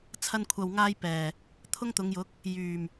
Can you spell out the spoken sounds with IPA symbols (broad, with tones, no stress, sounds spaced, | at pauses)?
t͡sʰ ɐ˥ n kʷʰ ɐ˧ w ŋ aː˥ j p ɛː˨˩ | t̪ʰ ʊ˥ ŋ t̪ ʊ˨˧ ŋ j ʊ˨˥ k̚ | j yː˨˩ m